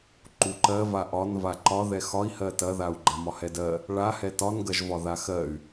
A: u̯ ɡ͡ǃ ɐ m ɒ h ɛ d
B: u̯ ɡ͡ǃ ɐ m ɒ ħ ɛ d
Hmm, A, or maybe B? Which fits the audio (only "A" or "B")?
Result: A